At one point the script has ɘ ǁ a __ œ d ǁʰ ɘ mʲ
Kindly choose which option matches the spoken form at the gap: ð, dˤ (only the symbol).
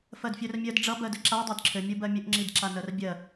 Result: dˤ